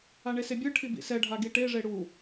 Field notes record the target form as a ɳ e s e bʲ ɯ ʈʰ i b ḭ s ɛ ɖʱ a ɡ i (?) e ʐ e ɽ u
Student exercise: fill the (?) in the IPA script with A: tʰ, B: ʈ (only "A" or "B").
B